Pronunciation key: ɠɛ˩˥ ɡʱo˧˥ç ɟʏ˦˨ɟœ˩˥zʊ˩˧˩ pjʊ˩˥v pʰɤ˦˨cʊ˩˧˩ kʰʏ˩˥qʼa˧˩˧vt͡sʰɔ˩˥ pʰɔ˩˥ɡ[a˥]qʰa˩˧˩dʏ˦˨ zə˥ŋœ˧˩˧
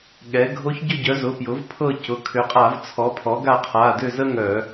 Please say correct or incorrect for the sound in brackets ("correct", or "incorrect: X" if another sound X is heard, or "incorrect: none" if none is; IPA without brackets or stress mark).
incorrect: a˦˨